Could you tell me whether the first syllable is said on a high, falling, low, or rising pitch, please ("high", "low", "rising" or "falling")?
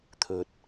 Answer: low